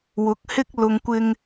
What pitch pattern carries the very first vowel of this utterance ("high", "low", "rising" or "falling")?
rising